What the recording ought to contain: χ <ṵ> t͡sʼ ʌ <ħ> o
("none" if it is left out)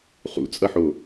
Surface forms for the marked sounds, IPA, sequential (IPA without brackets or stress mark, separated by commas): ṵ, ħ